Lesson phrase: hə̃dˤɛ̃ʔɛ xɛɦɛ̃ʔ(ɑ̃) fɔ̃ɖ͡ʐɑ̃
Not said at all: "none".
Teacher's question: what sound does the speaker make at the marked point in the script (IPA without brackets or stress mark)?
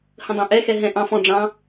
ɑ̃